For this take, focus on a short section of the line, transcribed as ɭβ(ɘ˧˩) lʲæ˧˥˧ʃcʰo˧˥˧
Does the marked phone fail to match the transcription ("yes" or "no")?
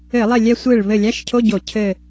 no